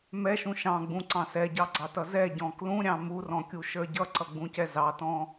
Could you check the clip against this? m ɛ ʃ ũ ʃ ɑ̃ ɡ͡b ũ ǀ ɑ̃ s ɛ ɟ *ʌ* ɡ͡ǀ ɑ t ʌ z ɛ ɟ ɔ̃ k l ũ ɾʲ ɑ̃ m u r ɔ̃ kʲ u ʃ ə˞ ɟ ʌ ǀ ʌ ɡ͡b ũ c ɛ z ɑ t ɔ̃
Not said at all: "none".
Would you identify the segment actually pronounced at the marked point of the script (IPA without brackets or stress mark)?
ɑ